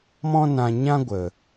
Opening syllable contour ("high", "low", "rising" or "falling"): high